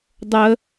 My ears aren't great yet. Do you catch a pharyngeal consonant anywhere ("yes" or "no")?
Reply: no